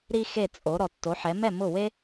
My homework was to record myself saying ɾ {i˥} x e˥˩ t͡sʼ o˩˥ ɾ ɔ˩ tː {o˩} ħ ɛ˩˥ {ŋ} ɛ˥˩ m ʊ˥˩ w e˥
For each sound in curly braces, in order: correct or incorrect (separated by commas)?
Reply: correct, incorrect, incorrect